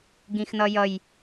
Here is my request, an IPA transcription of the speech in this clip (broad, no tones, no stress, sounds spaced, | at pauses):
ɡ ĩ x n ʌ j ʌ j